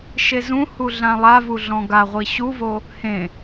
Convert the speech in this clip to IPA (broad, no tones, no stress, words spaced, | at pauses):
ʃezũhu ɮãlˠavu ɮɔ̃ɡaʁʷi ɕuvo | hẽ